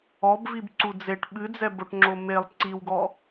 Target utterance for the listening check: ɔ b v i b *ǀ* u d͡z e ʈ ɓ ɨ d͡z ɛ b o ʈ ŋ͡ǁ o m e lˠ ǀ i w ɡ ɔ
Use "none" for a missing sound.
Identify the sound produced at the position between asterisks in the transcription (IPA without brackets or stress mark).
ǀ